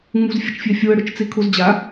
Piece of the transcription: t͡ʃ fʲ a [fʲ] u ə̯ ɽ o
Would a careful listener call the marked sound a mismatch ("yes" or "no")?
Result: no